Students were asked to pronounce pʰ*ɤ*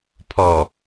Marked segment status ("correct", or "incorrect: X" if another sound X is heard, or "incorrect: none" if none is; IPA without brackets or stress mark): incorrect: ɔ